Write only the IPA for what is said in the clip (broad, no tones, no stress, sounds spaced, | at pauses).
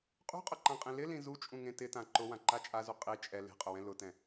qʼ ṳ qʼ ʊ ǃ ã qʼ ĩ l ɪ l ĩ z u t͡ʃʼ ũ ŋ ẽ t ɪ t ã ǃ ʊ w ã ǃ a t͡ʃʼ a z u qʼ i t͡ʃʼ ɛ l e̤ qʼ ʊ w ɛ̃ l ʊ t ɛ̃